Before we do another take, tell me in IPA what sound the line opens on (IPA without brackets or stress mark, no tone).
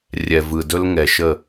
rʲ